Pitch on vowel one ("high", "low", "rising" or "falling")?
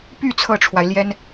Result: falling